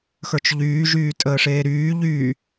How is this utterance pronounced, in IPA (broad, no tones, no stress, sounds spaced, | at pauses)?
x ə˞ t͡ʃ ʎ yː ʒ yː tʼ əː ʂ eː ɾ yː ʎ y